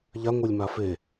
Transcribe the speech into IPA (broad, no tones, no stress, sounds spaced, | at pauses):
ʎ a ŋʷ ə˞ lʲ m a f e